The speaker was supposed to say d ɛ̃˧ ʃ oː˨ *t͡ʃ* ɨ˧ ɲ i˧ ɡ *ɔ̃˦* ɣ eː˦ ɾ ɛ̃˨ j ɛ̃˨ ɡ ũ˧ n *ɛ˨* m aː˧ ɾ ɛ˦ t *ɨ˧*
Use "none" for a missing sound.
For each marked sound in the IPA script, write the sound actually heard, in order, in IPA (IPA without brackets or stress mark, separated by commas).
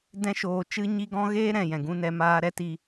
t͡ʃ, ɔ̃˦, ɛ˧, i˧